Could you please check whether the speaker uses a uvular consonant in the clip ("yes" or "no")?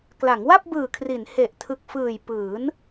no